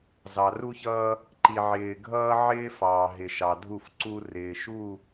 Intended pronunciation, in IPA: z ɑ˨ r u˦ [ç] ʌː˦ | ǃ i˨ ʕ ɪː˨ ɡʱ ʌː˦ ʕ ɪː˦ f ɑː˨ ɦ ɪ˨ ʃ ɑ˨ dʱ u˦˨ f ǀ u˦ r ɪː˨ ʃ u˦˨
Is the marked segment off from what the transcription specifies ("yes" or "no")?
no